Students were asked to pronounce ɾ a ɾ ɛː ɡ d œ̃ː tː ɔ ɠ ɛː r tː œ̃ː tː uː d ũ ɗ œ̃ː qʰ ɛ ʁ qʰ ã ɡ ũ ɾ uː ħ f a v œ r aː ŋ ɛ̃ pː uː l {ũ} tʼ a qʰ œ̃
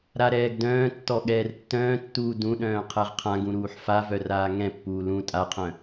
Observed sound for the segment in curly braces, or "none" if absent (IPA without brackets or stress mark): ũ